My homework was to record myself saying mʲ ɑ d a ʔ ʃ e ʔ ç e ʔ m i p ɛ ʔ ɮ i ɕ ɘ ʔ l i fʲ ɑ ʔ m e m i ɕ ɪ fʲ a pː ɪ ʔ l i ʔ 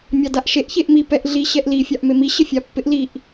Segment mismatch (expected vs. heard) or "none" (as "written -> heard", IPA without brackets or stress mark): ɘ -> ɛ